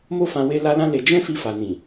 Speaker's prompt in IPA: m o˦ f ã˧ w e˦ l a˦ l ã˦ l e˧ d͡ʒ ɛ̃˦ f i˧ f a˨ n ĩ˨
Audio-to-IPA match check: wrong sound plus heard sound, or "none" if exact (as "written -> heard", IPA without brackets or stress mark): none